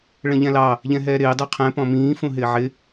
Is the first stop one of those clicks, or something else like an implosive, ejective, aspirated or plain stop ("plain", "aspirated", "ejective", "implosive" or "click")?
plain